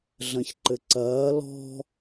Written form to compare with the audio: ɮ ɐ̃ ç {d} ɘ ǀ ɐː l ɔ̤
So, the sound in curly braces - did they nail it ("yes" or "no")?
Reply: no